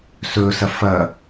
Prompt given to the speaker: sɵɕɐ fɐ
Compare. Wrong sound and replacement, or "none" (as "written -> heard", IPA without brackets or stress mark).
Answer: ɕ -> s